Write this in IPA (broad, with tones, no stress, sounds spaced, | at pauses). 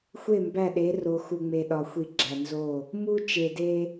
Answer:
xʷ e˦˨ m b æ˦˨ ɗ e˨˦ r o˨ x u˨ ŋ͡m e˨ ɗ ɒ˨ xʷ i˨ ɡ͡ǁ æ˨ n z o˦˨ | m u˦ t͡ʃ e˨ d e˦